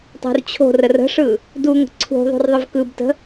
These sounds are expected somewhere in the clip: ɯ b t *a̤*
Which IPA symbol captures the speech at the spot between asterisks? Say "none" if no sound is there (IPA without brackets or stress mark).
ə̤